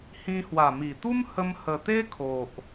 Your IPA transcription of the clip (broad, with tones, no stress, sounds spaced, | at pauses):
h ĩ˧ h w a˨˩ m i˨˩ t̪ u˦ m h ə˦ m h ə˧ t̪ e˦ kʰ o˨ ʔ